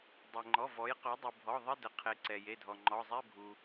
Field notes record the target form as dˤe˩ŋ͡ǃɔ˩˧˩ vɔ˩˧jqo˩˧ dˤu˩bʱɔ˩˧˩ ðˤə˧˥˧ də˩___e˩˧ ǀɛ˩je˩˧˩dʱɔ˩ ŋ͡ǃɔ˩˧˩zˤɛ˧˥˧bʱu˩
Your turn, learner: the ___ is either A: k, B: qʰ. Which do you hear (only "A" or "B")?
B